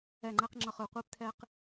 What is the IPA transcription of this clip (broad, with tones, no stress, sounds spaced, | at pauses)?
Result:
ɛ˧˩ ŋ͡ǃ ɛ˦ q ŋ͡ǁ ʌ˧˩ χ ɯ˧˩ qʷ iː˦ p t̪ʰ ɛː˦ q